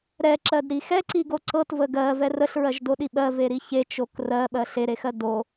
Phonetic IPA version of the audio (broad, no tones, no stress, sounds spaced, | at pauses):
ɾ ɛ ǁ ɜ d ɾ i x ɛ ǀ i ɡ o ǀ ɤ t v ə ɡ ɜ v ɛ r ə ɬ ɹ ɜ ʒ d o ɗ i ɓ ɜ v e ɾ i ç e t͡ʃ o k r ɜ ɓ ɜ ɬ e ɾ e x ɜ d o